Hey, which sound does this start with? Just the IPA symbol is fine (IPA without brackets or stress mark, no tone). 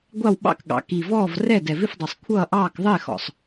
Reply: ɡʷ